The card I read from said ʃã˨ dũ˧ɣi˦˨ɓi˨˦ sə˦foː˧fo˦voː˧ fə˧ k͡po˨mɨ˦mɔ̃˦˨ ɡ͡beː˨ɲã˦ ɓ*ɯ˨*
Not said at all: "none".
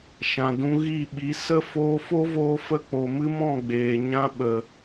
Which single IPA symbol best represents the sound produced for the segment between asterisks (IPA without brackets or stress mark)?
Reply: ə˨